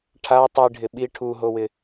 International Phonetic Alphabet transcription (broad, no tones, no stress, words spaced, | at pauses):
ʈʰa tˤiɖʱɪ ɓi ʈʰuɦowɪ